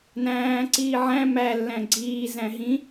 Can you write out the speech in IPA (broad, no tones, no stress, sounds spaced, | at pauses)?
n æ̃ː ǀ iː ʕ æ̃ m æ lː æ̃ ɡ͡ǀ iː z æ̃ ɦ ĩ